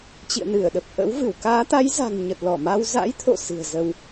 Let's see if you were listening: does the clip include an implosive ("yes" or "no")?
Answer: yes